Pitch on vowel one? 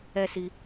high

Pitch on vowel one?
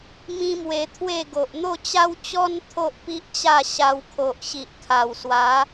high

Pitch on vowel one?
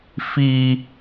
low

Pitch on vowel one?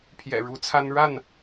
low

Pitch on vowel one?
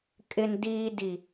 low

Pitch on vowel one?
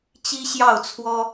high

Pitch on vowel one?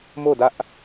falling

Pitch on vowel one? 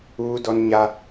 high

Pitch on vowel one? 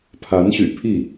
rising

